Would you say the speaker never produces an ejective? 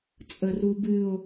no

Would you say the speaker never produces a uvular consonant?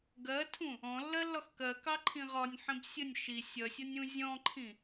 no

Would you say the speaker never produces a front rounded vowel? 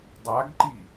yes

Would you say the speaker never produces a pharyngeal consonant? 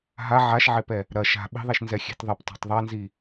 no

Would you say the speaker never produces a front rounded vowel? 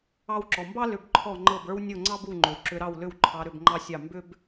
no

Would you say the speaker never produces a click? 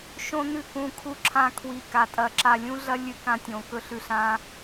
no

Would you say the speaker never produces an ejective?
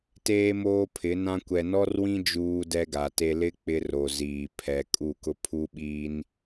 no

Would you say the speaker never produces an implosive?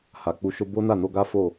yes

